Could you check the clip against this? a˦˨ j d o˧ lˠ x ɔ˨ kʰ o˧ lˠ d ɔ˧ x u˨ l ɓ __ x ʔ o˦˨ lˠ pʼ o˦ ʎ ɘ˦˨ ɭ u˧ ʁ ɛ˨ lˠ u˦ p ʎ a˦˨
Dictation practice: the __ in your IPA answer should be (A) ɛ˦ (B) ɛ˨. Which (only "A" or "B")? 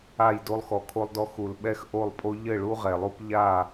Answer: A